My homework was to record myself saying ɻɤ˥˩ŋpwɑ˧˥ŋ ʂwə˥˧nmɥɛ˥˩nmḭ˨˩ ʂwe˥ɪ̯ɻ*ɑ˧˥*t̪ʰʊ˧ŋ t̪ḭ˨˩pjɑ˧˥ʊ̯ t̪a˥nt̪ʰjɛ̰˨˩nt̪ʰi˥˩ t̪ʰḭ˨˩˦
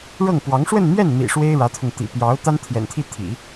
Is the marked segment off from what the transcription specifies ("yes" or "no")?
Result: yes